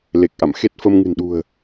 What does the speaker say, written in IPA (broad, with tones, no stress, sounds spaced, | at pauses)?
l e˨˩ k̚ ʔ a̰˧˨ m x e˦˥ t̚ f ə˧ m ŋ ɨ̤˨˩ n ɗ ṳ˨˩ ə̯